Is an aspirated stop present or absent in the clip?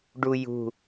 absent